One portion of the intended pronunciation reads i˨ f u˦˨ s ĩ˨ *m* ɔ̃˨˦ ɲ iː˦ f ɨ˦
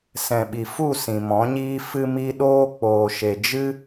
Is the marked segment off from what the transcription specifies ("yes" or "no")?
no